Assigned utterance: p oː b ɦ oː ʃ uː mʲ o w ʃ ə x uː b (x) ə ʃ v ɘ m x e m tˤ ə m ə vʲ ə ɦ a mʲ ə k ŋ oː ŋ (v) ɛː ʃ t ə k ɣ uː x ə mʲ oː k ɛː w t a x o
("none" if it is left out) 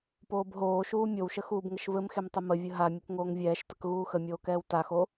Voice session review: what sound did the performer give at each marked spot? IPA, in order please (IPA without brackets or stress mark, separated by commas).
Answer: ŋ, vʲ